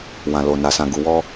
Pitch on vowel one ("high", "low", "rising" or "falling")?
low